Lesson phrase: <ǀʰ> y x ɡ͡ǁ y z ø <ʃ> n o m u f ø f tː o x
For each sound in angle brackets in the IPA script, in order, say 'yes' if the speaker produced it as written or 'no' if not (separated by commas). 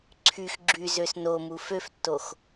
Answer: yes, no